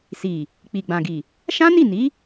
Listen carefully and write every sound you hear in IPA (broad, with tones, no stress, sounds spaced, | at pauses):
s i˨ | k͡p i˨ ɡ͡b ã˨ ɡ i˨ | ʃ ã˦ n i˦˨ n i˨˦